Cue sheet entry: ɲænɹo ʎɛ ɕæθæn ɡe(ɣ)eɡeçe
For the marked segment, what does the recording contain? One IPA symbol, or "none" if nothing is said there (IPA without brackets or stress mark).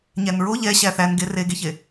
r